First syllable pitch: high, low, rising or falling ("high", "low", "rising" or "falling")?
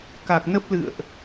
low